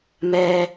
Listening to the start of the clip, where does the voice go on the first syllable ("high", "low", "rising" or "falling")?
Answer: high